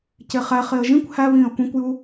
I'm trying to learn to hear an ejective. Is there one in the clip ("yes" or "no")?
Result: no